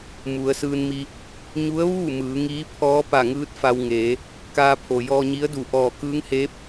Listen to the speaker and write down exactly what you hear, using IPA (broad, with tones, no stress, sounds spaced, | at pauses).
m u˩˧ ə̯ s ɯː˧ n m i˧ | ɲ u˧˥ ə̯ ʋ uː˥˨ m ɯː˩˧ ŋ iː˧˥ pʰ ɔː˧˥ p a˧˩ ŋ ɯː˧˥ t̚ f a˧ w ŋ eː˩˧ | k aː˧ pʰ o˩ j ɔː˧ ɲ i˧˥ ə̯ d u˧˩ ʔ ɔː˧˩ k ɯː˧˥ ŋ h eː˧˥ p̚